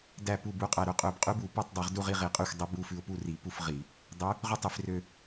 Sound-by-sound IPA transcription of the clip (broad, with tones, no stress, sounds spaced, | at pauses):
d æ˥˨ p u˥˨ b u˧˥ qʼ æ˧ ɾ ɵ˧ qʼ ø˧˩˧ b qʼ ʉ˧˥ b u˧˩˧ p ø˥˨ tˤ dˤ u˧˩˧ ʁ d u˥˨ ʁ i˥˨ ʁ i˧˩˧ qʼ ø˥˨ xʷ dˤ ɵ˧˥ b u˧ f ʉ˧ ʊ̯ p u˥˨ r i˧˩˧ p u˥˨ f ʁ i˧˩˧ | dˤ ø˧˥ | ʁ ɵ˥˨ tˤ i˧˩˧ f r ø˧